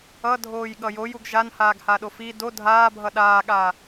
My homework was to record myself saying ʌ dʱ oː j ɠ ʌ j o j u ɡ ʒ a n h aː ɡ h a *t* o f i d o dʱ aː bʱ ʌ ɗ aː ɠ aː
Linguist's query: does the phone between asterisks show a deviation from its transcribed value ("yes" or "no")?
yes